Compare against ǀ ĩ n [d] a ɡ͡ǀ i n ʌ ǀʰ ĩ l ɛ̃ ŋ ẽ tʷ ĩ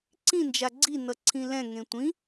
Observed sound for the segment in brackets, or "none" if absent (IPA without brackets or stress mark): d͡ʒ